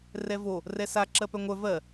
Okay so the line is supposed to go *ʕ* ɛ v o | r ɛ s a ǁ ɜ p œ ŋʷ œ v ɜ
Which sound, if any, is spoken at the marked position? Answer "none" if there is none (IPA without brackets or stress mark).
r